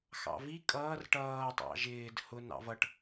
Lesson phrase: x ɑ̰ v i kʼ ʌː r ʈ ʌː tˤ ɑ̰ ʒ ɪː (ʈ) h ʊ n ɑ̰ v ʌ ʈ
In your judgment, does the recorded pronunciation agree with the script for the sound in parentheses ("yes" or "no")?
no